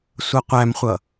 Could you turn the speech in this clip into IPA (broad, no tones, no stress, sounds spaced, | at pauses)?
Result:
sʷ ʌ qʷ æ m χʷ ʌ